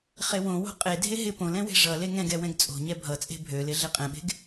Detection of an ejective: present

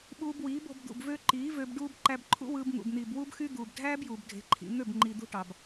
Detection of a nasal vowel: absent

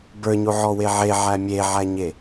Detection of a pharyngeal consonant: present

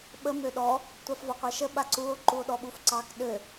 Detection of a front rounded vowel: present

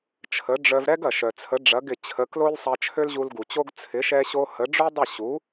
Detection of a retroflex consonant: present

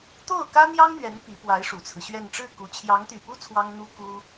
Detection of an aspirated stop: present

